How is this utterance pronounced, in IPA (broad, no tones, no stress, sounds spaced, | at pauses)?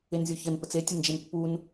e n zʲ o ç ə n p ə t͡s e tʲ ə n d͡ʒ e n pː u n